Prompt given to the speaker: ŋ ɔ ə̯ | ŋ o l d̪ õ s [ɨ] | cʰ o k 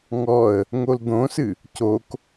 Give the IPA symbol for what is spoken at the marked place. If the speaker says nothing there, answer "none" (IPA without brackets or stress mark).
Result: ɨ